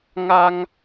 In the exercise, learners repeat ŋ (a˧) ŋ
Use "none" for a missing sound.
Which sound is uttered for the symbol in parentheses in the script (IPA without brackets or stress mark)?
a˧